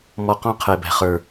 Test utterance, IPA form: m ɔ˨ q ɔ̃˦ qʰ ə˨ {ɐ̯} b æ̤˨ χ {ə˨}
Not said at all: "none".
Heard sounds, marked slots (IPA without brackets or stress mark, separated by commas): e̯, ə˞˨